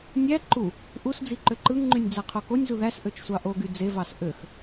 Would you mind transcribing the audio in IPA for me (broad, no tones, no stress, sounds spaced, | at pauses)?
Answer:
nʲ æ ǃ u | ʔ u s d͡z i ǃ ø ǃ ɯ ŋ ŋ͡ǃ y nʲ d͡z æ qʰ o k o nʲ z u ð æ s ʔ ø t͡ʃ sʷ ɑ ʔ o ɡ y d͡z e v ɑ s ʔ ø x